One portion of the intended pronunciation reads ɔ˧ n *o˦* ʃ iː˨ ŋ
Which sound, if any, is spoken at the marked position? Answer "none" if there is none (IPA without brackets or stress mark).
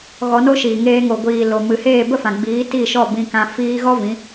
o˦